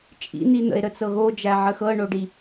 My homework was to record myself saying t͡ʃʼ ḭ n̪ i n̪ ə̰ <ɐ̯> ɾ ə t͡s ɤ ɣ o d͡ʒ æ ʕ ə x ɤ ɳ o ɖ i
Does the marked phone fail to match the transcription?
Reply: yes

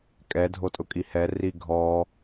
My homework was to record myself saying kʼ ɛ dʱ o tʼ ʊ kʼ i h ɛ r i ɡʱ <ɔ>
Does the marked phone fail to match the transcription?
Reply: no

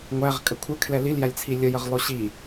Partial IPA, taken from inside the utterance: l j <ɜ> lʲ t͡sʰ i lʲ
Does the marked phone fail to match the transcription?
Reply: yes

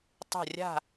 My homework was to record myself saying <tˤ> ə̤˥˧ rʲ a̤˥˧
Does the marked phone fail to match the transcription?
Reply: no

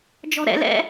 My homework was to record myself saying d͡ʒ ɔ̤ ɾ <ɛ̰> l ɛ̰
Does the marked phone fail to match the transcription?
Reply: no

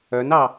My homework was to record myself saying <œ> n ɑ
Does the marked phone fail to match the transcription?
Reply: no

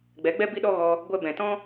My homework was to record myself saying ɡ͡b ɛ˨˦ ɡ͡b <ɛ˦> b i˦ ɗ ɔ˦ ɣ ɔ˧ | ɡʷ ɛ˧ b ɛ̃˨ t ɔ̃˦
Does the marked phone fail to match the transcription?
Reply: no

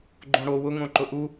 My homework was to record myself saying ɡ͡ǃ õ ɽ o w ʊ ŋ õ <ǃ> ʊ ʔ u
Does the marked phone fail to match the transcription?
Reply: no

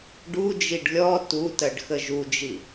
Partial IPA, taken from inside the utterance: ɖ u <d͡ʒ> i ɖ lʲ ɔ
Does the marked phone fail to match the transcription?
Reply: no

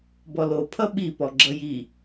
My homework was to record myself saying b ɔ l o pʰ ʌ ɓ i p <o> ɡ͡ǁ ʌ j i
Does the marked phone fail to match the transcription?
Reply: yes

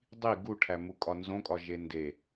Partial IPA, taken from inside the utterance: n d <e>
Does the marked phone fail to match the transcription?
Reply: no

